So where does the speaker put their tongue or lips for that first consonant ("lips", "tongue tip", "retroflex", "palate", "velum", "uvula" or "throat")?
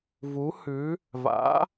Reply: lips